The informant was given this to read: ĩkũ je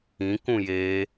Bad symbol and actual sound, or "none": none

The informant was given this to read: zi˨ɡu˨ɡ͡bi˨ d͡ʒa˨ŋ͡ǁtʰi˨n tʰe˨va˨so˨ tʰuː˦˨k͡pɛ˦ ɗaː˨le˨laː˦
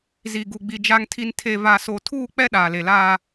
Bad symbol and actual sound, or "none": ŋ͡ǁ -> ŋ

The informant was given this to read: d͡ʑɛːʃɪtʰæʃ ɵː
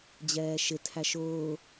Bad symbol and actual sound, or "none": ɵː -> ʊː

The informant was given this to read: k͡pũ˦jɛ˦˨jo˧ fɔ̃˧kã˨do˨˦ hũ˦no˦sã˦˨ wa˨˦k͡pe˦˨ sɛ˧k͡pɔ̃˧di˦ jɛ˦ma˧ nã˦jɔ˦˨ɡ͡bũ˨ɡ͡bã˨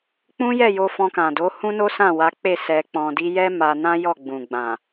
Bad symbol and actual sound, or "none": none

